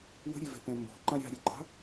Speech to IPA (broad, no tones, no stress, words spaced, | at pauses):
wə̤ɾʲevɛ̤pɛ̃ mbɔ̤ǃã ɾʲɑ̤ɾʲɛɡ͡ǃɑ̤